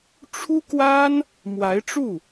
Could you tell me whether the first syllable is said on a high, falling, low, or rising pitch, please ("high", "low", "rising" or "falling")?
high